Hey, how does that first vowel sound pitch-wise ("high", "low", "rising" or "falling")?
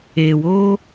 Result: low